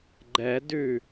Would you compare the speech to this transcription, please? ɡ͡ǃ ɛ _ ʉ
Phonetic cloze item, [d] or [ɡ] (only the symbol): d